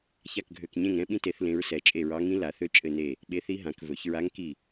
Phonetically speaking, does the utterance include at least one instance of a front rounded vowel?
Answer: yes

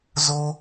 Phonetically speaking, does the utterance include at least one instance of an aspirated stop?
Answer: no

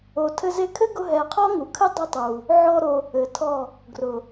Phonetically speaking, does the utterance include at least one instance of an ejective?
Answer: no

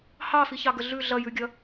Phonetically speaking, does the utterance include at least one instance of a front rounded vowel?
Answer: no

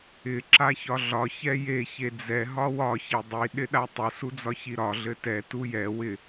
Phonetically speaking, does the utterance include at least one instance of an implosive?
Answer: yes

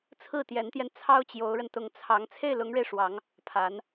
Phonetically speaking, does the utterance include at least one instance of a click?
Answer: no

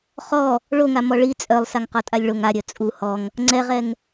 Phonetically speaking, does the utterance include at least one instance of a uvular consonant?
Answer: yes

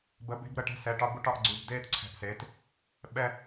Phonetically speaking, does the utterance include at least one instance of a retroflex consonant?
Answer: yes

